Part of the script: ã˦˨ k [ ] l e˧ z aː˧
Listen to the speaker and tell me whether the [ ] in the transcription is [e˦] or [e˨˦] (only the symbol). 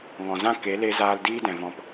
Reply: e˨˦